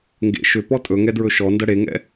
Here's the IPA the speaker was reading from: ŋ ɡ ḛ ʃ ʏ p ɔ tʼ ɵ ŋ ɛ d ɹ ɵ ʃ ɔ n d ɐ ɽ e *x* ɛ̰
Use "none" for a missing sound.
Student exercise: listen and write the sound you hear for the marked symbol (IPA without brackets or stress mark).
ŋ